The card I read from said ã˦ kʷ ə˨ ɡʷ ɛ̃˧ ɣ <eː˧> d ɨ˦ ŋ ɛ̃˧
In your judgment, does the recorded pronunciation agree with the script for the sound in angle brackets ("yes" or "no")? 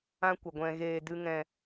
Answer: yes